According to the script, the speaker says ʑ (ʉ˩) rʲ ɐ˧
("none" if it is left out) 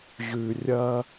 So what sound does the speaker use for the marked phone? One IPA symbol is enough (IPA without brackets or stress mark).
ʉ˩